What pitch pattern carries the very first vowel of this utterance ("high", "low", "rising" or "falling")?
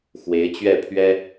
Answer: rising